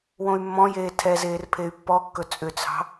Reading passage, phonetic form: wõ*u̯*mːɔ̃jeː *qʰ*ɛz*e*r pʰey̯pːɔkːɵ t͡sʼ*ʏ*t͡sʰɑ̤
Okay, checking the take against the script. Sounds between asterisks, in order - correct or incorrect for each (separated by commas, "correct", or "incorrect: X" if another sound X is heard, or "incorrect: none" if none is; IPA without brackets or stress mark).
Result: incorrect: y̯, incorrect: tʰ, incorrect: eː, correct